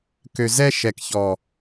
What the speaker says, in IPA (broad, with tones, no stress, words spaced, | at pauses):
kø˨zɛ˦ʃɛ˨kçɔ˨